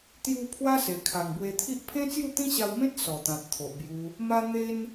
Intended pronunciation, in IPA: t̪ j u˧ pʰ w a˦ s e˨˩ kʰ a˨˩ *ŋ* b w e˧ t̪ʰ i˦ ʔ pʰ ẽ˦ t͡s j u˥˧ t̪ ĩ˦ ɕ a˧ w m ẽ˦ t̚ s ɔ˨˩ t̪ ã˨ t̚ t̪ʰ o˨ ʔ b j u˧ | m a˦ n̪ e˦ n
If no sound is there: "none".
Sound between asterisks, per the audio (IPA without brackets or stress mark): ŋ